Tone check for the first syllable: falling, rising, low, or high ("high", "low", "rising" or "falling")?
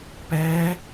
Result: rising